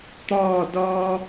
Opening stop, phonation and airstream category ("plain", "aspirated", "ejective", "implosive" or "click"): plain